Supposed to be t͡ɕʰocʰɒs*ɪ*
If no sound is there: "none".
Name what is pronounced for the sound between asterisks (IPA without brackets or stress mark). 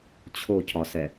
ɛ